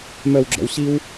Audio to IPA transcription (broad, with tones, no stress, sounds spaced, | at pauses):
m œ˨ w ɡ͡ǁ ɔ̰˨ w ɕ i˦ w